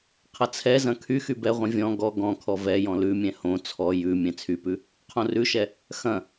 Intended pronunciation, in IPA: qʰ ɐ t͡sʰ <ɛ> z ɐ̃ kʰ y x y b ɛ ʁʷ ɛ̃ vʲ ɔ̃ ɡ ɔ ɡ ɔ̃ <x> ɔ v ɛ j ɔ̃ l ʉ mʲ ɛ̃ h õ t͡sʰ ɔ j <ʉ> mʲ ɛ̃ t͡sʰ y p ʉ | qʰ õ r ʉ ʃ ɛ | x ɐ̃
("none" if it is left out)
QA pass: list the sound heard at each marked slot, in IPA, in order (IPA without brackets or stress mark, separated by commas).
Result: ɛ, kʰ, ʉ